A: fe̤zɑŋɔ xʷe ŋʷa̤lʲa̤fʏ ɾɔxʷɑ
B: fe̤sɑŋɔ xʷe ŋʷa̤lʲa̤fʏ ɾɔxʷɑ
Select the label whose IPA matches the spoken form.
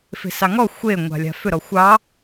B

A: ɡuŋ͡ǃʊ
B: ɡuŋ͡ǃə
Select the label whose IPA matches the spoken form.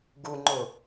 A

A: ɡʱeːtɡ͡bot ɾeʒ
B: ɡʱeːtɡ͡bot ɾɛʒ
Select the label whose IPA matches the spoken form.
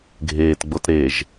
A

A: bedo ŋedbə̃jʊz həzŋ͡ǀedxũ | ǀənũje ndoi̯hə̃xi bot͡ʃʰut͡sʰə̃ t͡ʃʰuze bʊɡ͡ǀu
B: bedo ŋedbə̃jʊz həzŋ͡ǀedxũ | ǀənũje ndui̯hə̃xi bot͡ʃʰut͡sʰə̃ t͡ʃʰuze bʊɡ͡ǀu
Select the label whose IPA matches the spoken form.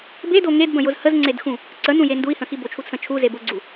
B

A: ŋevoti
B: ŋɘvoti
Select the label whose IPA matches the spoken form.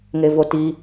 A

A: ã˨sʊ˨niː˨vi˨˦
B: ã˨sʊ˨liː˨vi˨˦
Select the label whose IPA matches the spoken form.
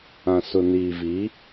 A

